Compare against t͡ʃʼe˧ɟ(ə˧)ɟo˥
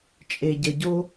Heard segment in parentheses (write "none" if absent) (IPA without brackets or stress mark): ə˧